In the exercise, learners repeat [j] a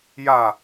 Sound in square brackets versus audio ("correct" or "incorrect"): correct